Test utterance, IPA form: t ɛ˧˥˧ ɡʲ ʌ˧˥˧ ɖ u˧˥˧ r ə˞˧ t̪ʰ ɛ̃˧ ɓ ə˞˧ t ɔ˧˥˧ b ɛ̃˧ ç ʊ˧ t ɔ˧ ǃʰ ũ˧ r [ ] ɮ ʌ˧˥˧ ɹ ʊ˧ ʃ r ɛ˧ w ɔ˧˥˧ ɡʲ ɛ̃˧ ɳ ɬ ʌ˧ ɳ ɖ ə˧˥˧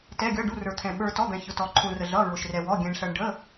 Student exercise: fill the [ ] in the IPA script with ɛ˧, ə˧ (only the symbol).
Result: ə˧